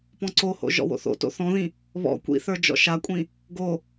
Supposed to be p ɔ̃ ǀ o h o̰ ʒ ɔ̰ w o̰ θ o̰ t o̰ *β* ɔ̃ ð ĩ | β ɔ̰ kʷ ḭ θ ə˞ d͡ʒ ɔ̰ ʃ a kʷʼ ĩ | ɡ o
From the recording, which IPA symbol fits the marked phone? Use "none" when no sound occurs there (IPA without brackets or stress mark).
θ